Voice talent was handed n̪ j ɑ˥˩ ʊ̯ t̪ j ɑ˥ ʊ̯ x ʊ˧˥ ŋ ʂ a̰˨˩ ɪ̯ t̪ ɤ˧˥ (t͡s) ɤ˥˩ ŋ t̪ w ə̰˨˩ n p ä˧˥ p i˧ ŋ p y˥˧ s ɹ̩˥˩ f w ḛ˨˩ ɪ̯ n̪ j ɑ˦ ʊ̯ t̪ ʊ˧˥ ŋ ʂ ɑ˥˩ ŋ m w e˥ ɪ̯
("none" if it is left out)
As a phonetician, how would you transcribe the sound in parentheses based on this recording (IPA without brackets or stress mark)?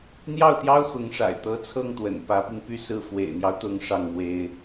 t͡sʰ